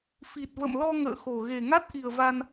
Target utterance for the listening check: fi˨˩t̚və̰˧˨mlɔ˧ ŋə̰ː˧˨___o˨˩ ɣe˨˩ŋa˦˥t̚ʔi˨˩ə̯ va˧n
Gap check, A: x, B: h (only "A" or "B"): A